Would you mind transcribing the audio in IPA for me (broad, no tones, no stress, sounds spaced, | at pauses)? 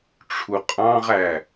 ʈ͡ʂʰ u qʼ ɑ̃ ʁ æ